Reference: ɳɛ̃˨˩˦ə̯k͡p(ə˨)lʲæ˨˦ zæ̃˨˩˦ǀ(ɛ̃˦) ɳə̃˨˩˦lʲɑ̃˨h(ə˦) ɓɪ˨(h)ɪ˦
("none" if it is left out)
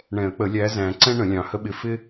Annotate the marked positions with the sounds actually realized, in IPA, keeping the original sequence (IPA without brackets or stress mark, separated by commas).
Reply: ə˨˩˦, ɛ̃˦, ə˦, f